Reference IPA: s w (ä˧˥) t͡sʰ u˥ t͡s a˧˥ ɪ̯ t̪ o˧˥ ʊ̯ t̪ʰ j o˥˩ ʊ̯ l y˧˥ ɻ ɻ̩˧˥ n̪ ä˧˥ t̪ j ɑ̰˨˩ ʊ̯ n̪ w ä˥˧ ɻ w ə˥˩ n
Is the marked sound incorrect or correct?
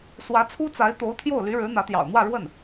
correct